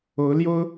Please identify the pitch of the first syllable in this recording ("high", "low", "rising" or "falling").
rising